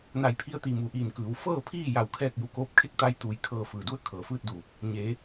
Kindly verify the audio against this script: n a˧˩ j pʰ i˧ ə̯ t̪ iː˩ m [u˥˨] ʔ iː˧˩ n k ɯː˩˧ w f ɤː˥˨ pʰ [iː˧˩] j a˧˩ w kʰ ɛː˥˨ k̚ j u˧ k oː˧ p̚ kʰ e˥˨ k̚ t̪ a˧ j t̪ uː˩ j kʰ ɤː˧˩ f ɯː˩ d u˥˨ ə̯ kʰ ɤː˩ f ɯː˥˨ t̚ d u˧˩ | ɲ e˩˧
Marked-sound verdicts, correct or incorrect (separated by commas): incorrect, incorrect